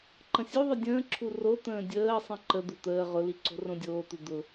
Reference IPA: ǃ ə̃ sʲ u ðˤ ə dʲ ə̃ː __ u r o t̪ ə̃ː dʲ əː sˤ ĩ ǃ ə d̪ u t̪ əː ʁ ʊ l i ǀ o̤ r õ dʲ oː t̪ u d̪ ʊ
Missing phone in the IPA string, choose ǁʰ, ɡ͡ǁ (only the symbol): ǁʰ